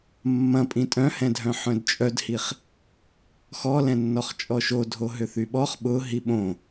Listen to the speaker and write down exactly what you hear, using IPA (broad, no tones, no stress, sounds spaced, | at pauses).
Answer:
mː ɐ̃ pʼ ĩ tʼ œ̃ h ɛ̃ dʱ œ̃ ħ œ̃ d t͡ʃʼ œ d h i χ | x ɔ l ɛ̃ nː ɔ χ t͡ʃʼ ɔ ʃ o dʱ o ɦ ʏ θ y ɓ ɔ χ ɓ ʊ ɦ i ɓ õ